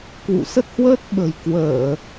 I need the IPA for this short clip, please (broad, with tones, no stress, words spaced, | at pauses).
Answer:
kwṵ˧˨sə˦˥t̚hwəː˦˥t̚ ɓə̤˨˩jkwəː˧˩˨